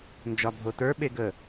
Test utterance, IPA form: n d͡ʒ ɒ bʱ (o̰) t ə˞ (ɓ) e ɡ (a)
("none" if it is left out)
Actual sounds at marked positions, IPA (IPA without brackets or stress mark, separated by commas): o, ɓ, ə